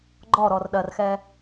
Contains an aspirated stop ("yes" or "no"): no